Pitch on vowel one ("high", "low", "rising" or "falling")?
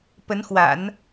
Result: rising